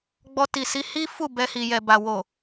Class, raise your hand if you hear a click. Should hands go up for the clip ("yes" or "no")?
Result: no